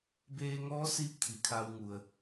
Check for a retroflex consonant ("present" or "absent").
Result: absent